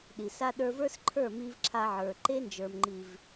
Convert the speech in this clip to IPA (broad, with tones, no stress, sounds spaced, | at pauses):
ɗ i˨ s a˦ ɗ ə˞˦ v ə˞˦ s ǃʰ ə˞˦˨ m i˧ v ǁʰ a˧ ʕ ə˞˨ ǃ e˦ n d͡ʒ ə˞˨ m ŋ͡ǃ i˨ v